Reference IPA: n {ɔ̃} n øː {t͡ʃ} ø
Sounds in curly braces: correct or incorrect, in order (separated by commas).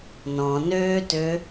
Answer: correct, incorrect